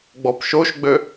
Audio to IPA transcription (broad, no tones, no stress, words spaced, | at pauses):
ɡ͡bɔpʃoʃɡ͡bø